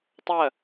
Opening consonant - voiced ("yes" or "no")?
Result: no